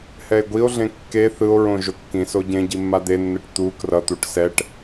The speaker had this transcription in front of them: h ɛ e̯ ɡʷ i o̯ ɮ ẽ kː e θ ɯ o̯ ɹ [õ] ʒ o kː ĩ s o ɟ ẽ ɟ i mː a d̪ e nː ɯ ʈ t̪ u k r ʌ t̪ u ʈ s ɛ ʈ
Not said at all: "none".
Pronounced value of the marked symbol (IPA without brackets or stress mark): õ